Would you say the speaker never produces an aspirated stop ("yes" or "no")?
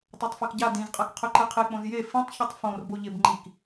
no